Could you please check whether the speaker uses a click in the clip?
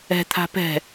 no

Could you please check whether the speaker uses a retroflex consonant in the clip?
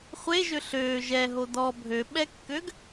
no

